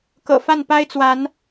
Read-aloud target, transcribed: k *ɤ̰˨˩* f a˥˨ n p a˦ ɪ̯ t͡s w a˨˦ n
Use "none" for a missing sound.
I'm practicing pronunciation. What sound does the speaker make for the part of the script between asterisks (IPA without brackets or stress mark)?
ɤ̰˨˩